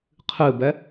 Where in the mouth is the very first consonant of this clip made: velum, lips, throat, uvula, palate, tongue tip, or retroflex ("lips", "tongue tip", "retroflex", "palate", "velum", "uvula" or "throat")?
uvula